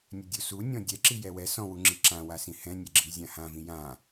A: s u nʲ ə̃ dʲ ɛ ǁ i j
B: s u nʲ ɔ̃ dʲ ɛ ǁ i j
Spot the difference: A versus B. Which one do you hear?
B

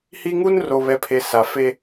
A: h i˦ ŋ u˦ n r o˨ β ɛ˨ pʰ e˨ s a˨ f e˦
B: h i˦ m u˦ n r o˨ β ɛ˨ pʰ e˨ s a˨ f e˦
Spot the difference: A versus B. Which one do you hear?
A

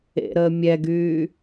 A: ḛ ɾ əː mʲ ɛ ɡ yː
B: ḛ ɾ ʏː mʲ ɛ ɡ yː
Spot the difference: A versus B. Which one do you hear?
A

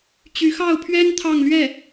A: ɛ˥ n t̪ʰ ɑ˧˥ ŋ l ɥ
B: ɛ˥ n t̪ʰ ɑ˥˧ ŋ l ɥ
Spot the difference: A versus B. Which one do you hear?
B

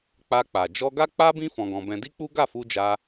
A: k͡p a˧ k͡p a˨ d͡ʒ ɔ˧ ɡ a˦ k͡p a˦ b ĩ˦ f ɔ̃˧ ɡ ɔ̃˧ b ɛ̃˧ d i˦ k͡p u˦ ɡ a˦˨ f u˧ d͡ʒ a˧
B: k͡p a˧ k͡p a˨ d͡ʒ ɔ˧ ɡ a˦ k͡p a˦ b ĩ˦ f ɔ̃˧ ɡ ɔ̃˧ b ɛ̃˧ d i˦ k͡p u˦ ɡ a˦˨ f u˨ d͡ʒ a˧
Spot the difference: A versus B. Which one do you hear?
A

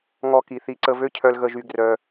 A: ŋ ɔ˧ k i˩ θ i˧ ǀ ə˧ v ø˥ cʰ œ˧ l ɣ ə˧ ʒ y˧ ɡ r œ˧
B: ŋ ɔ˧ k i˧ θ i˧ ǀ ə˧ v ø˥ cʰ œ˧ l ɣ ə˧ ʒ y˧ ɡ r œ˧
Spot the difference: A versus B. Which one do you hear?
A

